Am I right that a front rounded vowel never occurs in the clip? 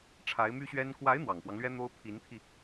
no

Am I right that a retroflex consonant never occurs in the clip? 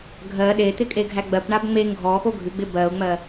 no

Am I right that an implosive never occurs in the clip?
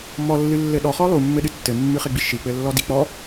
no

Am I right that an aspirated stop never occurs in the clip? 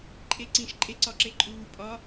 yes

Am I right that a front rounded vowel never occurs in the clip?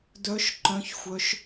no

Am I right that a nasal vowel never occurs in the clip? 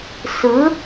yes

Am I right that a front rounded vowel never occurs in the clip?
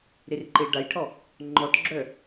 no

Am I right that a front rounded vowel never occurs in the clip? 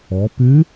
no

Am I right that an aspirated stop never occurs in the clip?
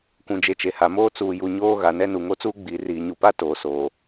yes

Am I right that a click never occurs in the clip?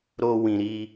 yes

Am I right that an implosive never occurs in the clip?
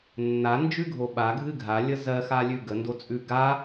no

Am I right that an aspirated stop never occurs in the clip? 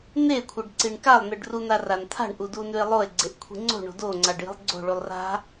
no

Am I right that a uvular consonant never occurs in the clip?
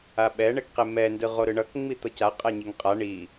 no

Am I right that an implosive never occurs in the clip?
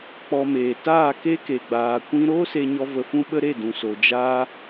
no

